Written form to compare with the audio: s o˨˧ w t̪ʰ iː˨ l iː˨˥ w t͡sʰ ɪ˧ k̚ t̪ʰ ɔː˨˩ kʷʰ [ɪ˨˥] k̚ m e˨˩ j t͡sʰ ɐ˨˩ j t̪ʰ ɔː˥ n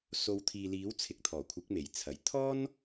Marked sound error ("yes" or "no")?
no